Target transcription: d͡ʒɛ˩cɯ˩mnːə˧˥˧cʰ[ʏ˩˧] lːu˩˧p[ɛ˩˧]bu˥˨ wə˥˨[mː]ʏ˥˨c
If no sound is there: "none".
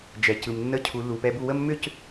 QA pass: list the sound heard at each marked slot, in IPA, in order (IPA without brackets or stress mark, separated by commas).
u˩˧, ɛ˧˥˧, mː